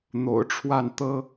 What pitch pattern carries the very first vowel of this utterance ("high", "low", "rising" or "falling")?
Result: low